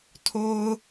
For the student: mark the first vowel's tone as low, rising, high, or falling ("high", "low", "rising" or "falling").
low